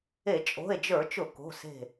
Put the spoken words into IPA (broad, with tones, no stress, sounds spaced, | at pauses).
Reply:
e˧˩˧ t͡ʃʼ o̤˩˧˩ e̯ d͡ʒ ə˞˧˩˧ t͡ʃ ʊ˧˩˧ k o̤˩˧˩ s e̤˧˩